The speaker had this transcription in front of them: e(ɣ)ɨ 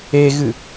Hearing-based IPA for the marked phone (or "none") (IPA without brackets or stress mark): ɣ